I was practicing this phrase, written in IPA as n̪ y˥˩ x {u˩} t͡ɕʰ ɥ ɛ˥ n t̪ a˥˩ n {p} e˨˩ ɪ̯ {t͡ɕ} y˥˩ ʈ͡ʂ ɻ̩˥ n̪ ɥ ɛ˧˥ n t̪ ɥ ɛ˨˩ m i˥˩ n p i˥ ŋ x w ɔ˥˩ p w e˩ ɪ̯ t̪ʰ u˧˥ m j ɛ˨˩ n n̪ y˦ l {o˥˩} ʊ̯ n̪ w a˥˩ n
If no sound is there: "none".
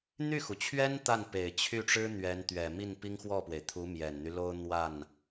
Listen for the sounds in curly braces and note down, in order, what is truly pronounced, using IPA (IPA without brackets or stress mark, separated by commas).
u˩, p, t͡ɕʰ, o˥